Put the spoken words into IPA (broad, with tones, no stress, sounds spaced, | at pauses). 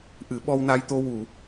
ʔ ɨ˨˩˦ ɓ ɔ˧ w n a˧ j t̪ o˧ w u˨˩˨